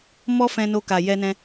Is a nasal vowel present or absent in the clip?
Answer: present